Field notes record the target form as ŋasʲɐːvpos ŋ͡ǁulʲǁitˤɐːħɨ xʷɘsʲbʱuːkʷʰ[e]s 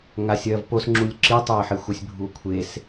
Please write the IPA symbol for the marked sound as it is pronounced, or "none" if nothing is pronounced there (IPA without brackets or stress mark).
e